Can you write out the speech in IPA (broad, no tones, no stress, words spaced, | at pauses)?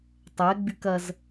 tˤɛɡ͡byk ɐz